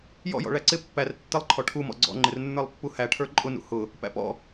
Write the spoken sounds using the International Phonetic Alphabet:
jɔ̰jɔ̰ ɭæǀɪ pːær tːɪlˠǃʰɔ ʈʰumɔ̰ ɡ͡ǀɔ̰ŋ͡ǃɪrnːə˞lˠ pːuhæʈʰə˞ ǃʼʊnṵ hʊ | pæ̰pɔ̰

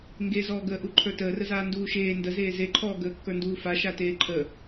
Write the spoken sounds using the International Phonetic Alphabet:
ŋɡezɔːɡəːʔu ǃʰə˞təːrəzaː nduːʃeː ndəzeː zeǃʰɔː ɡəːkːə˞nduːfa ʃateːǃʰə

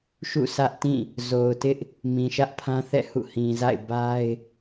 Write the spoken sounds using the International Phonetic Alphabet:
ʃṵ˦˨sä˦ʔtĩ˦˨ | zo˨ʊ̯tɪ˦ʔ | mĩ˨ʃä˦ʔpʰã˦θɛ̰˦˨ hṵ˦˨hĩ˨za̰˦˨ɪ̯ ba˦ɪ̯

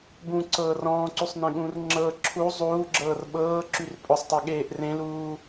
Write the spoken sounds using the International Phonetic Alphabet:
bũǀɤː rɔ̃ːǀysˤnẽɠũːr ŋ͡ǁɤ ǁʰu zˤuːɡ͡ǁɤːr ɓɤːǁyr pʼʊsˤtˤeɠeːʔ rẽluː

